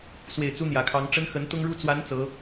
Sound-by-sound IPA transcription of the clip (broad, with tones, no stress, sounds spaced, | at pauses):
s w e˨˩ ɪ̯ t͡s u˥ n̪ j ä˨˩ kʰ ɑ˧˥ ŋ ʈ͡ʂ ə˥ n x ə˧˥ n t̪ ʊ˥ ŋ ɻ u˥ t͡s w a˧˥ n t͡s ɤ˧˥